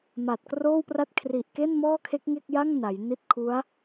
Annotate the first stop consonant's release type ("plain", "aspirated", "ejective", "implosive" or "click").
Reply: plain